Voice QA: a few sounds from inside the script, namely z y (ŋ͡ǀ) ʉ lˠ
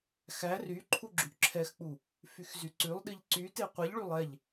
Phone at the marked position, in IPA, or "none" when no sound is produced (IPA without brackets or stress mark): ǀ